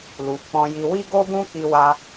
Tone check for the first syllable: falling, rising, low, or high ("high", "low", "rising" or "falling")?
low